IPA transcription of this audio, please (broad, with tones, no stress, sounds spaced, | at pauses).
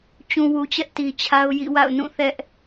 t͡ɕ ũ˨ w u˨ t͡ɕ ɛ˦ ʔ t i˨ t͡ɕʰ a˦ ʊ̯ j ḭ˦˨ w a̰˦˨ ʊ̯ n ũ˦˨ θ ɛ˦ ʔ